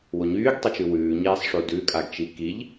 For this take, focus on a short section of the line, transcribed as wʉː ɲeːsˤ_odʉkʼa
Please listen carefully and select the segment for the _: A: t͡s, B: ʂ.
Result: B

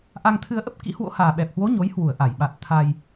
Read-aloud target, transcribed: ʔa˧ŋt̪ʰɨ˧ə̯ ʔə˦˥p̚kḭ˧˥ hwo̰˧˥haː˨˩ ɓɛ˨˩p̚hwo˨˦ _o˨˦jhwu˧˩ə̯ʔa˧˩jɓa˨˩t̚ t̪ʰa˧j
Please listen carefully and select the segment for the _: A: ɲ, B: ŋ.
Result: A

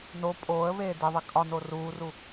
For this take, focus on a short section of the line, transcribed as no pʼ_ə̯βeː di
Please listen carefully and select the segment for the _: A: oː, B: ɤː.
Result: A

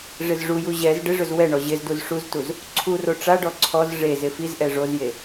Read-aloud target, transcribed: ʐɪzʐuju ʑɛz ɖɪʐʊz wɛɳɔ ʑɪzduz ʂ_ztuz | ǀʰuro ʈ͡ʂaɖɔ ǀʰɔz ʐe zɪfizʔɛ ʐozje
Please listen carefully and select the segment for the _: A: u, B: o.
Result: A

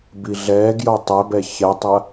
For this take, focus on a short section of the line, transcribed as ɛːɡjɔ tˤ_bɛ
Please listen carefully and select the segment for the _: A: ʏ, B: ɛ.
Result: B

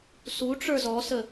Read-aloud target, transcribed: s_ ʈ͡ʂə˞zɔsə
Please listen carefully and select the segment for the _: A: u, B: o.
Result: A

